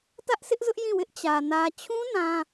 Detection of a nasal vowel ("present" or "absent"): present